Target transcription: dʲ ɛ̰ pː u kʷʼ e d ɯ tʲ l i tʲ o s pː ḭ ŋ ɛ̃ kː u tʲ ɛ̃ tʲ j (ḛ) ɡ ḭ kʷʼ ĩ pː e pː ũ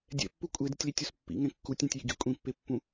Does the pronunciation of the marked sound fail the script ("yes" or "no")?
yes